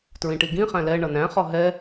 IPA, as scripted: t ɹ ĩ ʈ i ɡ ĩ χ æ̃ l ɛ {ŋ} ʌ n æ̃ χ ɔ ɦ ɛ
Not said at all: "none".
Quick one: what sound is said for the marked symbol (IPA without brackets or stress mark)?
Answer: ɳ